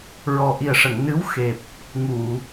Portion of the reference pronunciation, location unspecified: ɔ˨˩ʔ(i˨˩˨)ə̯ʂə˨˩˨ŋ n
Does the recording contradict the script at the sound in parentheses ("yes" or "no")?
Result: yes